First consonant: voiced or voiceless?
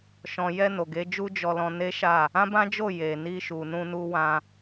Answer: voiceless